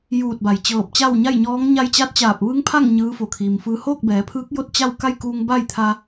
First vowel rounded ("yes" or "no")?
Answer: yes